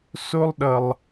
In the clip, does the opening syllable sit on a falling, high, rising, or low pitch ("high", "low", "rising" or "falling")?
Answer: high